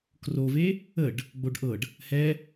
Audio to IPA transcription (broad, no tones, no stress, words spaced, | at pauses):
krove | əɖ | ɡ͡boɖʔɤɖ | hɛ